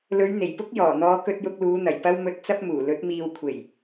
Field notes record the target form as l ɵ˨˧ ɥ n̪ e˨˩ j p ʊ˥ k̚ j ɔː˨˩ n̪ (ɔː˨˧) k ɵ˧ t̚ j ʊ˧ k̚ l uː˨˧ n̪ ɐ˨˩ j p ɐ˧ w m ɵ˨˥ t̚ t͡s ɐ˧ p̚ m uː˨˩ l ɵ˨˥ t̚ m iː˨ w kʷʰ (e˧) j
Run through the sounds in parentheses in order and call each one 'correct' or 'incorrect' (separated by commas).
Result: correct, incorrect